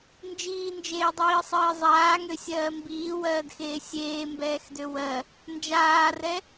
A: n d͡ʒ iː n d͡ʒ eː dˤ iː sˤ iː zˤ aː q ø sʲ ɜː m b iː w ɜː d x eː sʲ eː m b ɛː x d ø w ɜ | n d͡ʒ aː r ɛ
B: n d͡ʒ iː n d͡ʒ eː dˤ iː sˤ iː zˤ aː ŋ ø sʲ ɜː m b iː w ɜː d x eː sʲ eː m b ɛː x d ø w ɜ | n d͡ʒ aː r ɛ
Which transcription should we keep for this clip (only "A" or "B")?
B